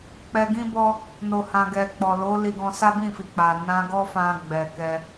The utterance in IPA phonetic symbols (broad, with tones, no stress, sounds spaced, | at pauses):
k͡p ɛ˧ ɡ ĩ˦ b ɔ˦ | n o˨ h ã˨ ɡ ɛ˨ k͡p ɔ˨ l o˨˦ l i˧ ɡ ɔ̃˧ s a˦ b ĩ˦˨ f i˨ k͡p a˨ n ã˧ ɡ ɔ˦ f ã˧ ɡ͡b ɛ˨ k ɛ˧